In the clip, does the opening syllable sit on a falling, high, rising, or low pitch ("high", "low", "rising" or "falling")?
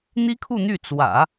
high